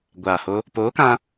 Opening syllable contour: low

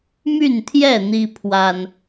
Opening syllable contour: falling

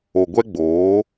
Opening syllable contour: low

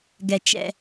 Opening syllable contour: low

